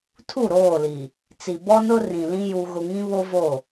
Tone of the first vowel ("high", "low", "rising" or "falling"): falling